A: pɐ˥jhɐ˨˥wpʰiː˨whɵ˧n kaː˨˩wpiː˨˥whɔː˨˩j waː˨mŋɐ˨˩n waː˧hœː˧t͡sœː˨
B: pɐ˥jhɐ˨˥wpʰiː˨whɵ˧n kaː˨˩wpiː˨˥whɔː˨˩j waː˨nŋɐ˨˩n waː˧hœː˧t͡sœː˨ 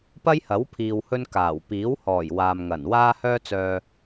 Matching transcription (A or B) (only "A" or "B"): A